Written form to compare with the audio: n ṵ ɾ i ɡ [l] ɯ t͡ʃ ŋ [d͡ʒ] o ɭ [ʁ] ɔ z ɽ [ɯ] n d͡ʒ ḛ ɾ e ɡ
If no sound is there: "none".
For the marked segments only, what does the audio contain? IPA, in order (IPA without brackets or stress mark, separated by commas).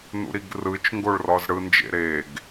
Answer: r, ɡ, r, ɯ